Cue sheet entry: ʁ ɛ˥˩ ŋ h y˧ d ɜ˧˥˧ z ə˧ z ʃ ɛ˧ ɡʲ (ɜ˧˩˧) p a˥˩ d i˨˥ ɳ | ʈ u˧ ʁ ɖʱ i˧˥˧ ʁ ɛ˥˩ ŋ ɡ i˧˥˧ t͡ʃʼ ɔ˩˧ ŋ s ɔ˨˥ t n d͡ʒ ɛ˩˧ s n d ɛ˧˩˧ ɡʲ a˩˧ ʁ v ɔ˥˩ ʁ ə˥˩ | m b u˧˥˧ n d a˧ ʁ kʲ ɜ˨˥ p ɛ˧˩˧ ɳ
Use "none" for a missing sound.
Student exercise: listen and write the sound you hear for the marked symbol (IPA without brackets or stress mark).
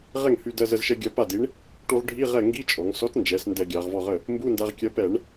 ɜ˧